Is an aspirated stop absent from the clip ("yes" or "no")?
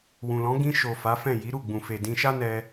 yes